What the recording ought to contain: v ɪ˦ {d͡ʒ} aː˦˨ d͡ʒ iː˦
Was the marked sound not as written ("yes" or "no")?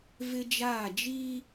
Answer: no